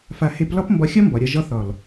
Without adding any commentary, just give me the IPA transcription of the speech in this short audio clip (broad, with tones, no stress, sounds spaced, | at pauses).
f a˧ h e˦ p l ɒ˦ p m b ɒ˧ xʲ ɒ˦ m b ɒ˨ ɾʲ ɒ˦ ʒ ɒ˦ θ ɒ˨ l